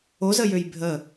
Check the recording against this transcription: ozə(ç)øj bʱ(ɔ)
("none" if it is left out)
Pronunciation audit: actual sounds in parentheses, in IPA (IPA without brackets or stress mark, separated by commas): j, ə